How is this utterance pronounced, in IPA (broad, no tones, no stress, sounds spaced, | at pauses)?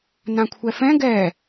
n ã kʷʰ ɛ f ɛ̃ ɡ ɛ